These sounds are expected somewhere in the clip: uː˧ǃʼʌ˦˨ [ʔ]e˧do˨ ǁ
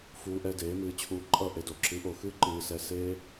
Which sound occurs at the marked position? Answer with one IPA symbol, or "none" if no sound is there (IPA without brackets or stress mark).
ʔ